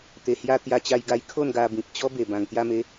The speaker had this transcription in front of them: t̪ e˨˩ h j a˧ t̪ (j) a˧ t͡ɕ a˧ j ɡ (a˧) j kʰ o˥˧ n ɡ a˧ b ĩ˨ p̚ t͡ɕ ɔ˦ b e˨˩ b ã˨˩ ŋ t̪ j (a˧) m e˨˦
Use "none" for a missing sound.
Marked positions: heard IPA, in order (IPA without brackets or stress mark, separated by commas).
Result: j, a˧, a˧